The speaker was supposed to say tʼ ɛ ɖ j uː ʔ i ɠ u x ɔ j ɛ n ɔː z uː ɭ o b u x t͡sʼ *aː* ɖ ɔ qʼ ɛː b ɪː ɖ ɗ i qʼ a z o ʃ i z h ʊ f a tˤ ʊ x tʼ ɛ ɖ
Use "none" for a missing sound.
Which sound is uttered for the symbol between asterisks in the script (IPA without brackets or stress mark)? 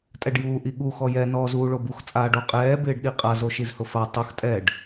aː